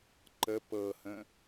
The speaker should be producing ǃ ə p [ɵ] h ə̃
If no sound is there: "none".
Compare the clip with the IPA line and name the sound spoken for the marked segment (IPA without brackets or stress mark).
ɤ